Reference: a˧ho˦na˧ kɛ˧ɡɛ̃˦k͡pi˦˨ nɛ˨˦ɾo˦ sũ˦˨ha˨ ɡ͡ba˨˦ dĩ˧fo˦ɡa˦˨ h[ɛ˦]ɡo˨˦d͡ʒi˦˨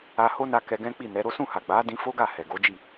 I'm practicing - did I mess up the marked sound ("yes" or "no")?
yes